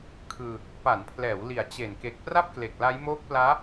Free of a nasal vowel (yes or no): yes